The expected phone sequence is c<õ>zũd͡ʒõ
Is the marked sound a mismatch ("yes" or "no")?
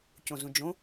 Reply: no